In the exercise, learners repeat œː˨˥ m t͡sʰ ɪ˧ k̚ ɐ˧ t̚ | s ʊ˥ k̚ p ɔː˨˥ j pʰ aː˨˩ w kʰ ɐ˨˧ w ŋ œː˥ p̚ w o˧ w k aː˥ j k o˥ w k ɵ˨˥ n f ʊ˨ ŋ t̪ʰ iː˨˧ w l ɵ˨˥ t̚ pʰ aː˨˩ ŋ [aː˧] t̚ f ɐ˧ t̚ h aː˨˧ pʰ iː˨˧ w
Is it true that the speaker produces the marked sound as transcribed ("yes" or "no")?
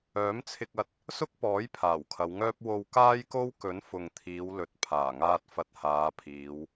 yes